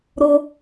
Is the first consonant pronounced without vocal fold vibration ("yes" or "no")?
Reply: no